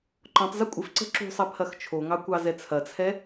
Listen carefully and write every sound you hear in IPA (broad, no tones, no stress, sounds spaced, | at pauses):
ǃ ɔ̃ tˤ z ɐ kʷʼ ɪ f ǀ ə̤ ǁ ṳ sˤ ɛ pʰ ɐ x t͡ʃʰ o ŋ ɑ kʷ ɑ z ɛ t͡sʰ ɐ t͡sʰ ɛ